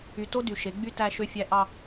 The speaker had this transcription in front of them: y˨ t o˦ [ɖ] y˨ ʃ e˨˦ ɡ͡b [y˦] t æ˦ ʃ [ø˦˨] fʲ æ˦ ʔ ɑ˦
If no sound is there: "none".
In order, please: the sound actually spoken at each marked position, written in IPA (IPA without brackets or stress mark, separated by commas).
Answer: d, y˦, ø˦